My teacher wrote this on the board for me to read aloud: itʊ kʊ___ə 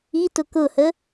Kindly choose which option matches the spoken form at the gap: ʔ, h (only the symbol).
h